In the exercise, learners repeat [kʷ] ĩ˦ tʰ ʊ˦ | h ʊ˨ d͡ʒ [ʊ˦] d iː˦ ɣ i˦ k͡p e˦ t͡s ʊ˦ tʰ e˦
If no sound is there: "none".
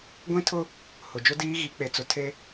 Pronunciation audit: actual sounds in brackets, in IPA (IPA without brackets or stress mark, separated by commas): ɡʷ, ʊ˦